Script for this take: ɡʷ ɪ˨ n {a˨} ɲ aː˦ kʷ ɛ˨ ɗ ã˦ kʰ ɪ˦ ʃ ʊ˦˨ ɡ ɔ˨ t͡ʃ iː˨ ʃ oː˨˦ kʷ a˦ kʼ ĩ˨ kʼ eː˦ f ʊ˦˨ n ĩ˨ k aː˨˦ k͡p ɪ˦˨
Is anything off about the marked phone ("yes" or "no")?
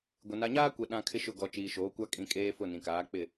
no